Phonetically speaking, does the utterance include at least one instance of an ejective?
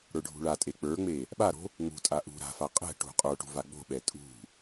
yes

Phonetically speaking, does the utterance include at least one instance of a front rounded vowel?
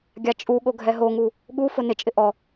no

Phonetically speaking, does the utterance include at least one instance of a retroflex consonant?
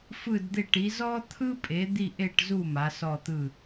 yes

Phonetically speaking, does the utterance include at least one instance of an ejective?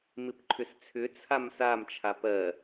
no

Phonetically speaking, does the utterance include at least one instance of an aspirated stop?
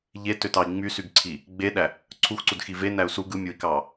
yes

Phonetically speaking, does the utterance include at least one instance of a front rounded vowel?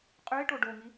no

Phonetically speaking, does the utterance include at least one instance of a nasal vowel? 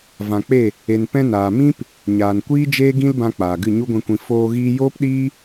yes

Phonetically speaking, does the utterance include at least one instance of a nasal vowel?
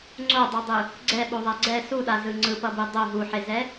no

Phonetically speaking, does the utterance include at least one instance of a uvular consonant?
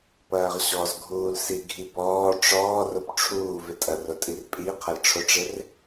yes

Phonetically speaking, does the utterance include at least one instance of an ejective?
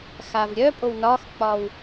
yes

